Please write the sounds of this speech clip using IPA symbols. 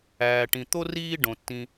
æː˩ʈĩ˩t̪o˥ riː˥ ɖõ˩tːĩ˨

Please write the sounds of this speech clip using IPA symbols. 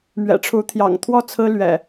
mɥɛ̰˨˩ʈ͡ʂʰu˨˦ t̪ʰjɑ̰˨˩ŋt̪ʰwɔ˥˨ t͡sʰɹ̩˦lɥɛ̰˨˩

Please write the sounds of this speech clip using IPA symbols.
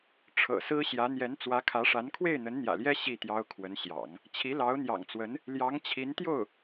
ʈ͡ʂʰɤ̰˨˩sɹ̩˥ɕjä˧˥ n̪jɛ˧˥nt͡swä˧˥kʰä˧˥ʂa˧˥n kʰwe˥˩ɪ̯n̪ə˧˥nn̪jä̰˨˩ljɛ˥ ɕi˥˩t̪jɑ˥ʊ̯kʰwə˧˥nɕjɑ̰˨˩˦ŋ | t͡ɕʰi˧˥lɑ˧˥ʊ̯n̪jɑ̰˨˩ŋt͡swə˧˥n | ljɑ˧˥ŋt͡ɕʰi˧˥nt̪jo˥˩ʊ̯

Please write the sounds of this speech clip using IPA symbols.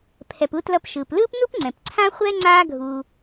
pʰɛ˨pu˥tlʌ˦p ʃɯː˩plɯː˥pnu˥pŋ͡ǀɛ̃˩p ǀʰã˥χʷɛ˥ ŋ͡ǀaː˦ ɡʱuː˨

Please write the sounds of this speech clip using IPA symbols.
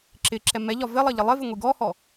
ǁɪǁɛ mɛʎɒ vɪlˠʌ ʎɪlˠɪvɪ ŋʷiɡɔhɔ

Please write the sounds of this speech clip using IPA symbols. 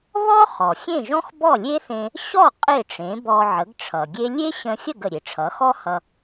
βɔ˥χɔ˩ xʲẽ˥˩ʒɔ̃˥x bɔ˥˩lʲe˥θẽ˧ | ɕɔ˥˩ qʼe˥˩ʈ͡ʂẽ˩˥bɔ˧ ʕə˩˥ɡʈ͡ʂʰʌ˩ɡʲe˥ lʲe˥ɕə̃˧xʲə˥˩ɡ ə˩ɾʲe˩ʈ͡ʂʰʌ˩˥ xɔ˥ hʌ˧

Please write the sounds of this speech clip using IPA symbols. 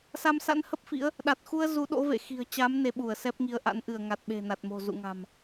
sa˧msa̰˧˥nhə˦˥p̚fḭ˧˥ə̯ | ɗa˨˩t̚xu˧ə̯ zu˨˦ɗo̰˧˥vḛ˧˨ xi̤˨˩ə̯t͡ɕa˨˦m ne˨˦ɓu˧˩ə̯sɛ˦˥p̚ŋi˨˦ə̯ ʔa̰˧˥nʔɨ˧˩ə̯ŋa˨˩t̚ ɓe̤˨˩na˨˩t̚mo̤˨˩ zṵ˧˨ŋa̤˨˩m

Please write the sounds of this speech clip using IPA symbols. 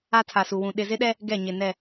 a˦tʰa˨su˨wũ˨ ɗɪ˨zɪ˦ɗɛ˦ | ɡɛ˦˨ɲɪ˨nɛ˦˨

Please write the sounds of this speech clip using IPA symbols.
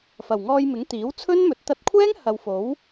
fɐ˨˩wŋɔː˧jmɪ˨˥ŋ t̪iː˨˥wt͡sʰɵ˥nmɵ˨t̚ t̪ɐ˧t̚kʷʰɛː˥ŋ hɐ˨wfo˨˥w

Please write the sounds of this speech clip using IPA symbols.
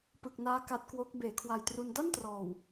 pɯ˨˩k̚naː˦˥ ka˦˥t̚kwo˦˥k̚ beː˩˦kʰwa˨˩jtru˧n da˥˩ntrɔː˨˩w

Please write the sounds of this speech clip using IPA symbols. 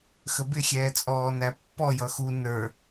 xəbɪ xʲɛːt͡sʼɔːnæpːɔ jʌxu nə˞

